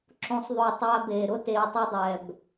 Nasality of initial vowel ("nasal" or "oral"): nasal